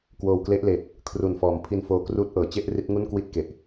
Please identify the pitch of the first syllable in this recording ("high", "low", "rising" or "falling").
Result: low